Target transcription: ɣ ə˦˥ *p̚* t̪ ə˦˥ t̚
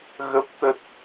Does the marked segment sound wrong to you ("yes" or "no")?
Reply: no